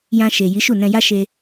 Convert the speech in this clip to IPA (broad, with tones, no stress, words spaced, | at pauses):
jã˧ʃe˨ ji˨˦ʃu˦˨ nɛ̃˧ ja˦ʃe˧